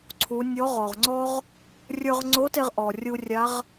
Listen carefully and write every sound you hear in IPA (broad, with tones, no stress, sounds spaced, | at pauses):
ǀʰ u˩˧ nʲ ɔ˧˥ ʁ ɔ˩ ʁ ŋ͡ǀ ɔ˥ ʁ | rʲ ə˞˧ ʁ ŋ͡ǀ o˧˥ t e˧ ʁ ʔ ɔ˩ rʲ u˧ rʲ a˧˥ ʁ